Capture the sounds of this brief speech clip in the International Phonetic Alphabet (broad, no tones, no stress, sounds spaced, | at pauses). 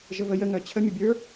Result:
ʒ ə v ə j ə ŋ œ t͡ɕʰ ə mʲ ə bʲ ə˞